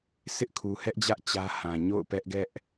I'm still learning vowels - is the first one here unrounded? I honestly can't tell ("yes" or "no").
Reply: yes